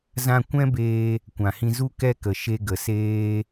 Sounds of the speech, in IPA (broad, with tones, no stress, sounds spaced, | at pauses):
z ã˧ kʷ ɛ̃˦ b eː˧ | kʷ ã˨ h ĩ˧ z u˦ k ɛ˦ k ə˨ ʃ e˧ ɡ ə˨ s eː˦